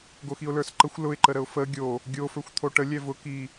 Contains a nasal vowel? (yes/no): no